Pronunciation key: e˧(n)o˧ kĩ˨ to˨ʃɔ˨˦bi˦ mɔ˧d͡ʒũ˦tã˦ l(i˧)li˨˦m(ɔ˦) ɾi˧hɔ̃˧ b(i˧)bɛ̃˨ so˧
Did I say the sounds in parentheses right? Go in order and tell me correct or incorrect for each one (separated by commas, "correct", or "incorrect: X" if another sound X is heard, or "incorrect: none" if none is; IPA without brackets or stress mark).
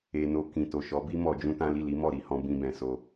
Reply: correct, incorrect: i˦˨, incorrect: ɔ˦˨, incorrect: ĩ˧